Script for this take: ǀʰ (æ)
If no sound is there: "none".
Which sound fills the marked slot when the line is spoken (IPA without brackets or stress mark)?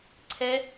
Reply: ɛ